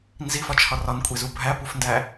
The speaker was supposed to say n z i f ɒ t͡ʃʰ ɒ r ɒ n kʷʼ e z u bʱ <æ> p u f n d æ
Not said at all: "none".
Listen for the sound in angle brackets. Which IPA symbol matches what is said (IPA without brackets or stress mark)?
æ